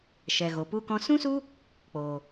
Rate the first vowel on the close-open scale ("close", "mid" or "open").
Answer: mid